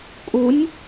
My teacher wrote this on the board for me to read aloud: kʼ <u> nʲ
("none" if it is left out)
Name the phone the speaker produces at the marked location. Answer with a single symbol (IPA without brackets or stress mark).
u